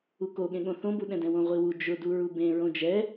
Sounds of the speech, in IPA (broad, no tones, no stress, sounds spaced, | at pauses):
u k o ɠ ẽ ɠ õ θ õ b u ɗ ɛ̃ d ɛ̃ w õ ʁʷ i w u d͡ʒ ʊ d u ɹ u b ẽ ɹ õ d͡ʒ ɛ